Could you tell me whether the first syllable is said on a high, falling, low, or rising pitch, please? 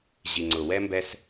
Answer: low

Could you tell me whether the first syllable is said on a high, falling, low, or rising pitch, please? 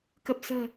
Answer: low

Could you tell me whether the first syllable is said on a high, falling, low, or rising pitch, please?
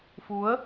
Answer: rising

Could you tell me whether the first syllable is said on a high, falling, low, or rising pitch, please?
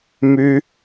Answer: high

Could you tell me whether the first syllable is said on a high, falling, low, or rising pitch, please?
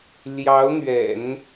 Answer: rising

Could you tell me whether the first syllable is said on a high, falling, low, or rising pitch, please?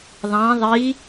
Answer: rising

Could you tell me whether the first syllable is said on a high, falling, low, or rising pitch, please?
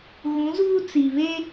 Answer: rising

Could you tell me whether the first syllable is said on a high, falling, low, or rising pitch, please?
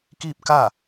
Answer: falling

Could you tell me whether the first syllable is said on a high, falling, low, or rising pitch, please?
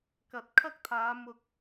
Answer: low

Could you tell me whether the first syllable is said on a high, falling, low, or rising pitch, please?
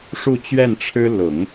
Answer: falling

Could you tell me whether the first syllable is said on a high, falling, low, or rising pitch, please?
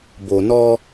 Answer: low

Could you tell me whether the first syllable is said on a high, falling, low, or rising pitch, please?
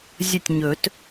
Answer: falling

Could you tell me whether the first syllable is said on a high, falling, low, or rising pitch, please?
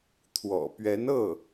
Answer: low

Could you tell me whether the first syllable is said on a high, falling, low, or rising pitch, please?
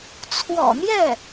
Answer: low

